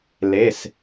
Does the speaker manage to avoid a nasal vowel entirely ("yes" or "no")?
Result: yes